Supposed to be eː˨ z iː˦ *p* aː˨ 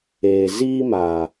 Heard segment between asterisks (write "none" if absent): m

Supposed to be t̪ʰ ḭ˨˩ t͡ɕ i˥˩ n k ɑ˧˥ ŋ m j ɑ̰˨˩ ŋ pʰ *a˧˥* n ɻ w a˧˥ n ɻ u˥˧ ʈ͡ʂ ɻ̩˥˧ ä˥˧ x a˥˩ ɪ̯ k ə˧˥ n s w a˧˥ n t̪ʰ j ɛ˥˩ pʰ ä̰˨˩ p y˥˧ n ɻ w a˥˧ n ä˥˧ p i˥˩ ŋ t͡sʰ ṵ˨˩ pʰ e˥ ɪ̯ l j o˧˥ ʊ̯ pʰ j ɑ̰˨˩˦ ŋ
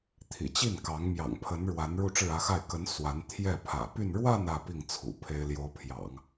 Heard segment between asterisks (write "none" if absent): ə˧˥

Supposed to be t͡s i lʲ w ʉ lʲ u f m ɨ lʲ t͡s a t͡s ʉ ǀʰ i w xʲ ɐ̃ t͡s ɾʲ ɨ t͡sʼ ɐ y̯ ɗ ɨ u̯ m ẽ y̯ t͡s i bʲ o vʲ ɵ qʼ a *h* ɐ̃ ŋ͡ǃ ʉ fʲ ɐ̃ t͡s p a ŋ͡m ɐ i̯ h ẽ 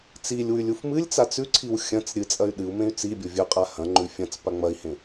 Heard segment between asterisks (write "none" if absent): h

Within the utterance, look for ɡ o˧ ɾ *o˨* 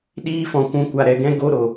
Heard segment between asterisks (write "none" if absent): o˨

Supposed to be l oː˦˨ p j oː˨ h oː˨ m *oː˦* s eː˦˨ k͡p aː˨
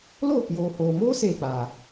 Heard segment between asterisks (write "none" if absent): oː˦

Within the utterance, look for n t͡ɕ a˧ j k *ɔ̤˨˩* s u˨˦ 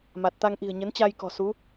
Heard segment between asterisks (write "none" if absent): ɔ̤˨˩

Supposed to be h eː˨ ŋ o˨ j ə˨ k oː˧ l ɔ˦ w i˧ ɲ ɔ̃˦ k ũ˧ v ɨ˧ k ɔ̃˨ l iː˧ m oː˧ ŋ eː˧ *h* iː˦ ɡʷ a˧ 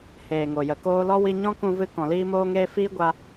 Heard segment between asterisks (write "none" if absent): f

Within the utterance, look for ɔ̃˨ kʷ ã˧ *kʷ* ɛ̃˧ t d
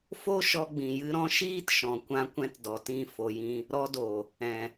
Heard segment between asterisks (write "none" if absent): kʷ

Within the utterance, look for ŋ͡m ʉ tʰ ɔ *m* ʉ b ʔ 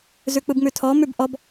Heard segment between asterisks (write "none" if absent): m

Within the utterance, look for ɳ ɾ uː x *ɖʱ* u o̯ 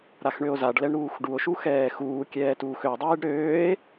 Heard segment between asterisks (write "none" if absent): ɖ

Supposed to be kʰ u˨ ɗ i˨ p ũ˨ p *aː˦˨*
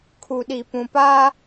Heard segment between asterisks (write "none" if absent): aː˦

